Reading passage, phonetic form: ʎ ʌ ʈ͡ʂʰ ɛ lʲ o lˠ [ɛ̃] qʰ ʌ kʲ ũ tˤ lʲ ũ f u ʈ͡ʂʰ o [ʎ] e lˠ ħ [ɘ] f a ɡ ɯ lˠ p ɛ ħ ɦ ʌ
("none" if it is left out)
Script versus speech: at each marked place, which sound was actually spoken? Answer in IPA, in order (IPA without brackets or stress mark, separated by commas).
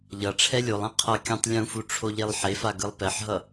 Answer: ɛ̃, ʎ, e